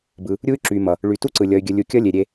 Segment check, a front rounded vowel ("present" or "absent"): present